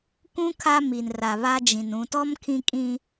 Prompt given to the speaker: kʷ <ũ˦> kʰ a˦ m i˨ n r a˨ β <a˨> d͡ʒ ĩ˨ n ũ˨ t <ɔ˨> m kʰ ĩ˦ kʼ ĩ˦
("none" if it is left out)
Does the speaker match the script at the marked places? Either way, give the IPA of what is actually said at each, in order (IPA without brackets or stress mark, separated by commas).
ũ˦, a˦, ɔ˦